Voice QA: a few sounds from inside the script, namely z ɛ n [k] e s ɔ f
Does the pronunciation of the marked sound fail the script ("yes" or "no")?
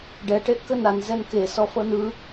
no